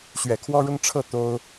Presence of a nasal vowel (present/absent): absent